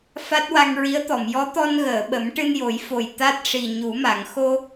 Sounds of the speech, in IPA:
f a˦˥ t̚ w a˧ ŋ ɹ i˧˥ ə̯ t̪ ɔ˨˩˨ m j ɔ˧˥ t̪ ɔ˧ n ɣ əː˨˩˨ ɓ ə˨˩˦ m ʈ ɨ˧ n j o˨˩˦ j f o˨˩ j t̪ a˦˥ t̚ ʂ i˨˩ ɲ u˨˩˦ m a˨˩˨ ŋ x o˧

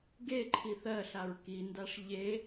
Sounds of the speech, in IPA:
ɡ e ǃʰ i θ ɜ ɬ a ɹ k i n d a ʂ ʎ e

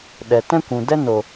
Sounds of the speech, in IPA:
ɗ ɛ˨ t ɛ̃˦ kʷ ũ˨ d ɛ˦ n o˨

